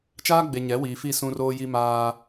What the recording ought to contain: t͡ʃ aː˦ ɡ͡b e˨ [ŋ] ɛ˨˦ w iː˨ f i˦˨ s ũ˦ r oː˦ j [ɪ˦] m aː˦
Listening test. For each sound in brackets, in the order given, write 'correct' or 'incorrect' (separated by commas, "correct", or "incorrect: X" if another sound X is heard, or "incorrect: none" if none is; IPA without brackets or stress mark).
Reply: incorrect: ɲ, incorrect: i˦